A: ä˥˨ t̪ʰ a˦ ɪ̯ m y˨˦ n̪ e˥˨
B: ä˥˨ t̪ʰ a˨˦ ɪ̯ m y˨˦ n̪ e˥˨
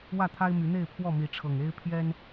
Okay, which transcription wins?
A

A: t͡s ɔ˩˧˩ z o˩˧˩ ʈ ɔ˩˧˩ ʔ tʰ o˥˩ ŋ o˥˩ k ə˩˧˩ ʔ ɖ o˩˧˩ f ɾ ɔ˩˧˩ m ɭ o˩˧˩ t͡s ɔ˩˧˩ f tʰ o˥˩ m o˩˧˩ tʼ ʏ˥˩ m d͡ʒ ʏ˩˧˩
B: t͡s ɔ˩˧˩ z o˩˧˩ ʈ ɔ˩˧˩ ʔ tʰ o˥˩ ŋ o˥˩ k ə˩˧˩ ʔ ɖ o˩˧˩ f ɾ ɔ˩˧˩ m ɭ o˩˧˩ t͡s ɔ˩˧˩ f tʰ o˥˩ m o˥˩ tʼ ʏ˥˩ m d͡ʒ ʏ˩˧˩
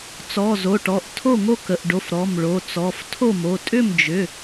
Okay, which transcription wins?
A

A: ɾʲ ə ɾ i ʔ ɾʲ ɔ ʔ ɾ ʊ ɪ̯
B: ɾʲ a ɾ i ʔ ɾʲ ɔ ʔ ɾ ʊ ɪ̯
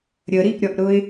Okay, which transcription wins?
A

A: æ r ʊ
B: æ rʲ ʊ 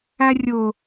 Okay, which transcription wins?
B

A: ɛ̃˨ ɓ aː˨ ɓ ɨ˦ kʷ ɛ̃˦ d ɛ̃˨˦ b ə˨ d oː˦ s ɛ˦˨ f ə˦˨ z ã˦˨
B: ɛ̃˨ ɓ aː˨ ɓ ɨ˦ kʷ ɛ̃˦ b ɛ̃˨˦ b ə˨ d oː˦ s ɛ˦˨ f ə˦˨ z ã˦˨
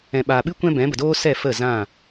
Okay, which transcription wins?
B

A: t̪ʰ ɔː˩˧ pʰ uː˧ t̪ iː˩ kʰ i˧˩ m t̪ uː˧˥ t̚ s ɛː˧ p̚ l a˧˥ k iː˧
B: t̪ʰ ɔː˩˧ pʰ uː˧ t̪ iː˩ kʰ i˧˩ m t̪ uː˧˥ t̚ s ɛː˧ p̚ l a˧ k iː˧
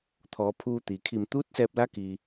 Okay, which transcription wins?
A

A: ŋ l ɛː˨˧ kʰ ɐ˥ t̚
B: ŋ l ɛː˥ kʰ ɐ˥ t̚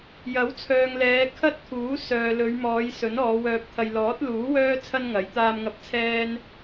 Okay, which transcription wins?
A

